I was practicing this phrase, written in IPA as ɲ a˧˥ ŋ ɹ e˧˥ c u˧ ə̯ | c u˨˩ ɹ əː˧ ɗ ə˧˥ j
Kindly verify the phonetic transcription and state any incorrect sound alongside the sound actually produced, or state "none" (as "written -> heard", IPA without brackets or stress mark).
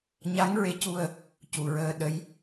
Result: none